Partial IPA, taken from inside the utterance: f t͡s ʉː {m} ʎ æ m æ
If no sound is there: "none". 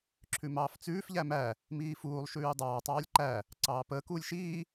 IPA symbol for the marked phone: f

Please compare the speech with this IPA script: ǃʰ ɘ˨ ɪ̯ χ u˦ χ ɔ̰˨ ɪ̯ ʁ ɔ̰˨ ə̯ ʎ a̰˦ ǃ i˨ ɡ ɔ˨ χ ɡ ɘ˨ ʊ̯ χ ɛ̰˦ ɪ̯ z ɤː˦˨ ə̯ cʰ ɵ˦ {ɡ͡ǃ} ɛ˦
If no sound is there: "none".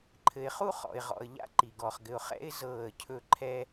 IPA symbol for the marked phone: ǃʰ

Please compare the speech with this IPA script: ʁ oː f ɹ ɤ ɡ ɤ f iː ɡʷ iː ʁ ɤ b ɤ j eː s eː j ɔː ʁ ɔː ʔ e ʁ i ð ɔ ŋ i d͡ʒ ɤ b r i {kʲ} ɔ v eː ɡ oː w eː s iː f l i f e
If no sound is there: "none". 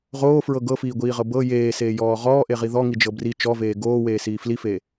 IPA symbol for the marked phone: t͡ʃ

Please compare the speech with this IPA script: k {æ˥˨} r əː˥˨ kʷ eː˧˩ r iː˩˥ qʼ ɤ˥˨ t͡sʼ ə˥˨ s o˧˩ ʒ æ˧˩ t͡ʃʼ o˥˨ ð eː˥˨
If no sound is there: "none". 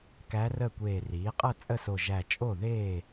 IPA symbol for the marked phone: æ˧˥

